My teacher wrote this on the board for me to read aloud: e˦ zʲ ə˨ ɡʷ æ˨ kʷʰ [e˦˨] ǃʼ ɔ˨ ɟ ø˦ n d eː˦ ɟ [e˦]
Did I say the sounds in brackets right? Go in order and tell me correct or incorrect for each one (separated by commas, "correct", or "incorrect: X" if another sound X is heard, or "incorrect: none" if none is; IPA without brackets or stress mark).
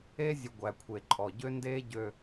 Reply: incorrect: e˨, incorrect: ø˦